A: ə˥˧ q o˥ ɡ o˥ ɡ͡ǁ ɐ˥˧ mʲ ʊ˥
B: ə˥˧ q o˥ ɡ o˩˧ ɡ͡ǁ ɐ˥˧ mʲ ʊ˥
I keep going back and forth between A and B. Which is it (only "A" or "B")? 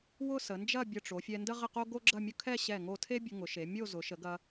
A